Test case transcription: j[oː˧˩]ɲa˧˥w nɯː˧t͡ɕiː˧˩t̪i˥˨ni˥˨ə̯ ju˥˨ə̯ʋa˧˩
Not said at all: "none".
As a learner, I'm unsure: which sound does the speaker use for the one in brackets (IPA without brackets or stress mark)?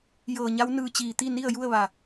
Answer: ɤː˧˩